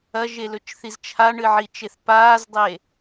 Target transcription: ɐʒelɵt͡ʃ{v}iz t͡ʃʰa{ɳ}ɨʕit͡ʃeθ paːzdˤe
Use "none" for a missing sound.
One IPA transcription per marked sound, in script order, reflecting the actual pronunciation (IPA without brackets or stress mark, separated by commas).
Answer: θ, ɳ